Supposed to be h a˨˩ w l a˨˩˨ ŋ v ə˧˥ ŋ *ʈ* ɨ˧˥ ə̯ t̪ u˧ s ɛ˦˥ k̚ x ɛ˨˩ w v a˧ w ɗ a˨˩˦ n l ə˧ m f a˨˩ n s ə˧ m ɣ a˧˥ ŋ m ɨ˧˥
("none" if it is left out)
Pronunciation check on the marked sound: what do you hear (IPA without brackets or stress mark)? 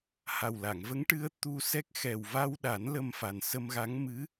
ʈ